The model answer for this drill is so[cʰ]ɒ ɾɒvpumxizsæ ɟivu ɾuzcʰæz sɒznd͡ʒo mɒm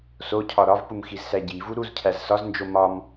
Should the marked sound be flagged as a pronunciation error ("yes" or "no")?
no